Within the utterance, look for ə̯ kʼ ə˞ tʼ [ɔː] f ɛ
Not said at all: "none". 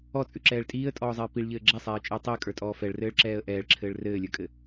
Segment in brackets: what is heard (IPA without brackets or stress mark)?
ɔː